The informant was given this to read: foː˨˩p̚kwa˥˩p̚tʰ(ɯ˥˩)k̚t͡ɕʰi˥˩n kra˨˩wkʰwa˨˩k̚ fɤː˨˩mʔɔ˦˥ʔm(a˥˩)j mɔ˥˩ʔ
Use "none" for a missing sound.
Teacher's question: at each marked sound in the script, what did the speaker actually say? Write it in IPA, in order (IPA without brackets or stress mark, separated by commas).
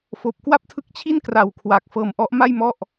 ɯ˦˥, a˥˩